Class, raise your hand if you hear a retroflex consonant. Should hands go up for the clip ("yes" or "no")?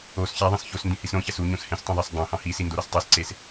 no